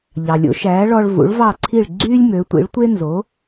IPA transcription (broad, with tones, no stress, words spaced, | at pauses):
ʎɑ˩lʲo̰˩˥ʃæː˩˥ ɭɔ˧ɭ vṵ˩˥ɭvɑ˥˩ǀʰi˥˩ɭ ɡ͡ǀyː˥lʲmø˩˥tʷḭ˩˥ɭ tʷe˥ nzo˩˥